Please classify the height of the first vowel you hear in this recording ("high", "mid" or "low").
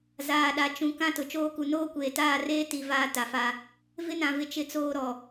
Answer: low